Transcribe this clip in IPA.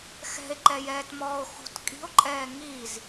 x ɛ̤ e̯ ǃ ɛ j ɛː t m ɔː o̯ x ṳ t kʼ i̤ o̯ ǃʼ ɛː ŋ i z

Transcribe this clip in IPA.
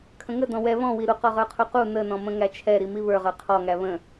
kʰ ə̃ ŋ ə d ɔ̃ w ɛ β ɔ̃ w i ɾ u q ɔ ʁ ə˞ qʰ u q u n ə n ɔ̃ m ə̃ ŋ æ t͡ʃʰ ɛ ɾ i m i β ə˞ ʁ ə˞ qʰ ɔ ŋ æ β ə̃

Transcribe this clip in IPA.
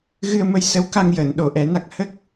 ɣ ɨ˧ ə̯ m ə˧ j s ə˧˥ w k a˧ ŋ j əː˨˩˨ n ɗ o˨˩˨ ʔ ɛ˨˩˦ n a˦˥ k̚ h ə˦˥ k̚

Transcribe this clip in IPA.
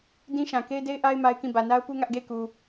d ĩ˦ ʃ ã˨ k e˦ ɪ̯ d e˦ ɪ̯ ʔ a˦ ɪ̯ m a˦ ɪ̯ k ĩ˦˨ b ä˨ n a˦ ʊ̯ p u˦ ŋ ä˦ ʔ ɡ e˦˨ ɪ̯ k u˨

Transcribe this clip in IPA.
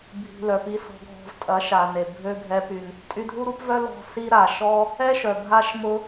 bʱ i̤˨ l œ˨ p i˧ s ɔ̤˧ ɡʱ ɔ̤˧ v tʼ ɐ˨˦ ʃ a˨ n e˨ bʱ ø˦ ɡʱ ɛ˦ p y˧ n | tʼ y˧ dʱ u˦ ɾ u˦ p v œ˦ l ɔ̤˧ s i˧ ɾ a˨ ʃ ɔ˦ | ɛ˦ ʃ œ˨ bʱ a˦ ʃ m ʊ˦

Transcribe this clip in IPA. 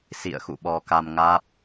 s ḭ˧˨ ə̯ x ṵ˧˨ ɓ ɔ˧ k a˧ m ŋ aː˦˥ p̚

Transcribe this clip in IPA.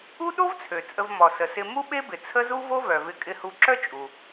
u˥ ɗ o˥ v t͡sʰ ø˩ t͡sʼ ə˧ v m ɔ˩ s ə˩ s ɪ˧ m u˥ ɓ e˥ b ɪ˩ t͡sʰ ə˥ z u˥ v o˥ v œ˩ v ɪ˧ kʼ ɪ˧ h u˧ ǁ œ˥ t͡ʃʼ u˩

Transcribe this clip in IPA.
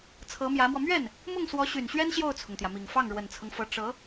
t͡sʰ ɤ˧˥ m j ä˧˥ m w ɔ˧ m ɥ ɛ˥˩ n | m ʊ˥˩ ŋ s w ɔ˧˥ ɕ y˨˩ n ɕ ɥ ɛ˥ n ɕ j o˥˩ ʊ̯ t͡sʰ ʊ˩ ŋ t̪ j ä˩ m i˨˩ ŋ f ɑ˥˩ ŋ ɻ w ə˨˩ n t͡sʰ ɤ˦ ŋ f ɤ˧˥ ʈ͡ʂ ɤ˧˥

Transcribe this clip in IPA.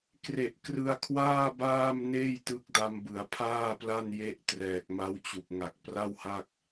k r e˨˩ ʔ k r ɯ˧ a̯ kʰ w aː˥˩ b aː˥˩ m n eː˥˩ j t ɯ˦˥ k̚ d a˧ m b ɯ˩˦ a̯ pʰ aː˥˩ p l a˥˩ n j e˦˥ ʔ t r ɛː˨˩ k̚ m a˦˥ w t͡ɕ u˨˩ k̚ ŋ a˨˩ k̚ p r a˥˩ w h a˥˩ k̚

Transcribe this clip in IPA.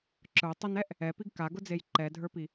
ǁ ə˞ tˤ ʊ n ɛ ʔ | ɛ p i ɡ k a ɡ ʊ d͡z e j ǃ ɛ dʱ ə˞ p i

